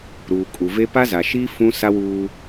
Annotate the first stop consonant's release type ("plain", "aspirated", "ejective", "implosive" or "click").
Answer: ejective